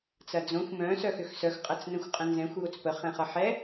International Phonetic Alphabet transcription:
t͡sɐd͡zõxʷ mœ̃ sœxʏxsœx qʼɐt͡snə̃xʷqʼə̃nzɛ̃xʷ jot͡spə χɛ̃χɐħɛ

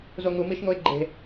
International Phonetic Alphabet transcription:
zoŋu miʃŋoɪ̯ɡ͡ǃe̤

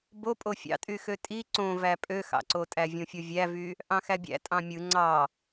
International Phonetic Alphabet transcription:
bopʼo fʲɑ̰tʼyxø tʼi ǀõvæ pʼøxɑ̰ǀotʼæ vʲõfʲovʲævy | ʔɑ̃xæbʲæ̰ tʼɑ̃mʲɯ ŋ͡ǀɑ

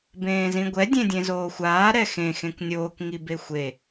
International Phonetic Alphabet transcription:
bẽːzĩɡʷɛ dʲẽdʲẽzoːxʷaː ɾɛxẽ xẽknʲoːk ŋibexʷe

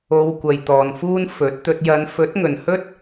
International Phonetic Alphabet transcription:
o˧wkʷɐ˨j t̪ɔː˨nfuː˥n fɵ˨˥t̚t̪ɵ˧t̚ jɐ˨˧nfɵ˨˥t̚ ŋɵ˨nhɵ˥t̚

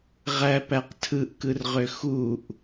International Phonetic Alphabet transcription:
ʁæpæq tʰɯʔkɯrʁø xuʔ

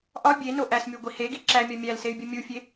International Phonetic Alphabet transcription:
ʔɒ bʲeno ʔæsmʲoɡʷi heɡi ǁæmʲɒ mʲælsey̯bʲu mʲufʲe

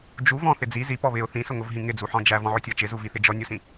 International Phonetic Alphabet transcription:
d͡ʒuv ɔ̃θɪ d͡zi zipɔ βɪʊ̯ θĩsʊŋʊvɦĩ ŋɪd͡zuħɔ̃ d͡ʒævɔ̃ʕʊtʲɔ t͡ʃɪzuviθɪ d͡ʒɔnʲusĩ

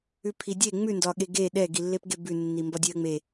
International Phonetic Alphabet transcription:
ʉpʰidʲe ŋ͡mʉndɒɠe ɡe ɗɛɡilːepɡe bʉnːi mbɒdʲeə̯ŋ͡me

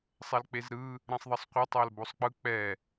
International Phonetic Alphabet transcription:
sˤɛlk͡pezɾɯ | ɾɛ̃sˤðˤʌsˤqʷʌ tˤalbosˤk͡pɯ k͡pɛ

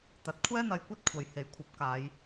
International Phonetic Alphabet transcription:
t̪ɐ˨˥t̚ kʷʰɛː˥ n̪ɐ˧jkʷɐ˥t̚kʷʰɐ˨j he˨˥jkʷʰɐ˨˥p̚ kaː˨˧j

